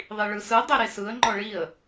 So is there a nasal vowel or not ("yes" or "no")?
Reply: no